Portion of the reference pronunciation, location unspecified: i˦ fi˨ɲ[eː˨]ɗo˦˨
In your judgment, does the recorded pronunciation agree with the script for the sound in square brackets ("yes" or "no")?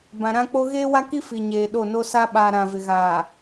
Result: yes